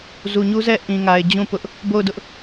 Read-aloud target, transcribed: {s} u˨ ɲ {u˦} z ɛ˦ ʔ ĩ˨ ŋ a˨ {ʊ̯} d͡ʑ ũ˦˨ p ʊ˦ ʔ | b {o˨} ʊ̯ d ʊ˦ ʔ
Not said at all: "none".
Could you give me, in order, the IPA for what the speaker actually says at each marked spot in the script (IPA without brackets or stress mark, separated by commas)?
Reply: z, u˦, ɪ̯, o˦˨